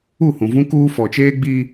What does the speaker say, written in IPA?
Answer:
u˦˨ h ũ˨ v ũ˦ k uː˦ f ɔ˨ t͡ʃ eː˦ ɡ͡b iː˦

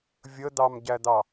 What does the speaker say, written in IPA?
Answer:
vʲ ə d̪ ɑ m ɟ æ d̪ ɑ

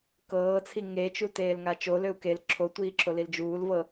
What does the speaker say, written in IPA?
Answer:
k ɤː t͡sʰ i ŋ e t͡ʃ u t eː l ŋ a t͡ʃ o l ø u̯ k e l ǁʰ o tʷ iː ǁʰ o l i l d͡ʒ uː l v ɤ

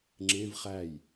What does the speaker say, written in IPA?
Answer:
ŋ͡ǁ ẽ v χ æ j

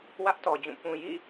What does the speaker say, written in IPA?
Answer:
w ä˦ ʔ t ɔ˨ d͡ʑ ũ˦˨ p ũ˨ j ḭ˦˨

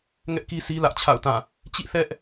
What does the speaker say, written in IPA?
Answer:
ŋ ɛ˦ ʔ k i˦ sʰ i˦ l ä˦ ʔ t͡ɕʰ a̰˦˨ ʊ̯ t ã˦˨ | t͡ɕ ḭ˦˨ θ ɛ˦ ʔ

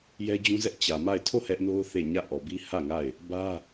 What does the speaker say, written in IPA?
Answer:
j ɛ˦ d͡ʑ ũ˦ z ɛ˦ ʔ t͡ɕ ä˨ m a˦˨ ɪ̯ tʰ o˦˨ h ɛ˦ ʔ n o˦ ʊ̯ θ e˦˨ ɲ ä˦˨ ʔ ɔ˨ b i˦ h ä˦˨ ŋ a˦˨ ɪ̯ | b ä˦

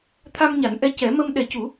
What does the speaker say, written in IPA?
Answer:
t̪ʰ a˧ m ɲ a˨˩˦ n ʔ ɛ˧˥ c ɛ˨˩˦ m ə˧ m ɗ ɛ˨˩˦ c u˨˩˦

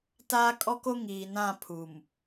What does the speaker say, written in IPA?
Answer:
t aː˦ kʼ ɔ˦ k o˦ ŋ iː˨ n ã˦˨ pʰ u˨ m

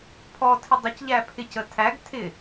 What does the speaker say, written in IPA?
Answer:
pʰ ɔ tʰ ɪ dˤ ʊ c ʎ æ pʰ ɪ c ə tʰ æ ɡ tʰ ɪ

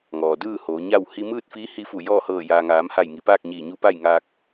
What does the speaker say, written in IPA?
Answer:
ŋ ɔː˩ d ɯː˥˨ h oː˩˧ ɲ a˥˨ w h i˧ m ɯː˥˨ t̚ f iː˧˥ h i˧˥ f u˧˩ j ɔː˥˨ h ɤː˧˩ j aː˩ ŋ aː˩˧ m h a˧˩ j ŋ i˩˧ p aː˥˨ k̚ ɲ iː˧˩ ɲ u˧˥ p a˥˨ j ŋ aː˧ k̚

